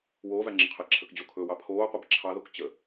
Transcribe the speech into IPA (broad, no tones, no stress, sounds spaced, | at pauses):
w oː v æ ŋ͡ǁ ə qʰ ɛ ǁʰ ə k d͡ʑ o kʰ ɵː w ɑ pʰ oː qʷ ɛ b ǁʰ ɑ ð o k t͡ɕ ə